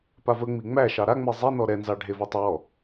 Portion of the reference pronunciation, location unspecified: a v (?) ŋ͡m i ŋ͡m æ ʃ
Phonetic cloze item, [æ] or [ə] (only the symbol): ə